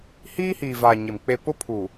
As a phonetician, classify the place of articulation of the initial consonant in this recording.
glottal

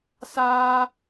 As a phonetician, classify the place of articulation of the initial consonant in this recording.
alveolar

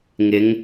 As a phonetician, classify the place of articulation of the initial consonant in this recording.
velar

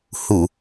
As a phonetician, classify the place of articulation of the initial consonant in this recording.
glottal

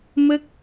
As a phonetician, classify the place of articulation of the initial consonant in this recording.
labial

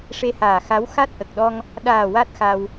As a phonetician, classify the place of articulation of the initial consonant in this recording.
retroflex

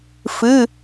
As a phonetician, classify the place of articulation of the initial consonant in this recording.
labial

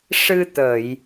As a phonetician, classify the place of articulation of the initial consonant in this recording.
retroflex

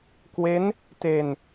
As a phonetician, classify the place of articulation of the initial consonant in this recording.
velar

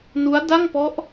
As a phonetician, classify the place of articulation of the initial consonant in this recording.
alveolar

